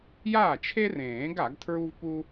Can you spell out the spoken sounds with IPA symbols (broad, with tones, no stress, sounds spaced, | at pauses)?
j aː˥˩ t͡ʃʰ e˥ r ẽː˨˩˦ ɡ a˨˩˦ ɡ tʰ ɹ u˥ v p u˥